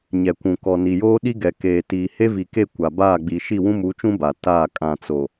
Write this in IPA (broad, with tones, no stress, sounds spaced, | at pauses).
ɲ ɛ˨ kʷ ũ˨ k ɔ˨ n i˨ j oː˦ ɗ i˦ ɡ ɛ˨ k eː˨ t iː˨ h e˦ v i˨ k e˦˨ kʷ a˨ b aː˦˨ ɡ͡b i˨ ʃ i˦˨ w ũ˦ m u˨˦ t͡ʃ ũ˦ b a˨ t aː˦˨ kʼ ã˨ t͡s o˨